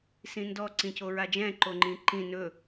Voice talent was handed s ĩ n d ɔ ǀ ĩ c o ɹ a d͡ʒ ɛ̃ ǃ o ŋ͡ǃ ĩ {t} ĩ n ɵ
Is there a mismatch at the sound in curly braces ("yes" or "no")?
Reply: yes